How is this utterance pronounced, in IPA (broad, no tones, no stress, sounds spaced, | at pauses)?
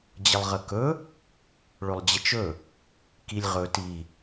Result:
d͡ʑ ə lˠ ʁ ə k ɵ | ɭ ɵ lˠ d͡ʑ ə t͡ʃ ɵ | k i lʲ ʁ ɵ t i